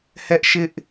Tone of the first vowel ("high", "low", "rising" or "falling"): high